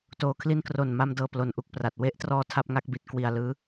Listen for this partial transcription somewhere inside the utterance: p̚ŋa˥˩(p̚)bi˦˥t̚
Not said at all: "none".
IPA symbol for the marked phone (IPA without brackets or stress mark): k̚